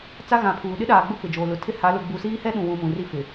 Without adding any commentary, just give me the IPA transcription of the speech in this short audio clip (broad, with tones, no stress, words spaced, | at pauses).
t͡sa˦ɣã˨pʰuː˨ ɗɪ˦ɗaː˨ɡ͡bʊ˦˨ pɪ˨d͡ʒoː˨lʊ˨ tʰɪ˦ha˨˦ lʊ˨ɡ͡bu˨siː˦hɛ˦ ɗũ˨wũ˨ mũ˨ri˦fɪ˨